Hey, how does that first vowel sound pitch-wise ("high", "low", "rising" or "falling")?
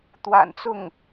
low